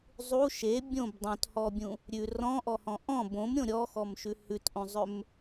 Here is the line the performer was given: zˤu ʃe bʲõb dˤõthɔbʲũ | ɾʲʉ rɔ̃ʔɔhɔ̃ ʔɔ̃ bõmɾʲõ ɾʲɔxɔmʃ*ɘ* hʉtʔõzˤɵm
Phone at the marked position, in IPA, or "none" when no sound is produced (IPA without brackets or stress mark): ʉ